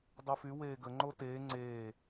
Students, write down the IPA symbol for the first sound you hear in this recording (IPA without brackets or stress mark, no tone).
dˤ